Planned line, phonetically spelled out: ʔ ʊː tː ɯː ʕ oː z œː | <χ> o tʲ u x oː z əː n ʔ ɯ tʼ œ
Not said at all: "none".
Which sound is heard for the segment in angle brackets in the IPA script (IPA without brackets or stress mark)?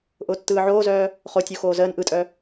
χ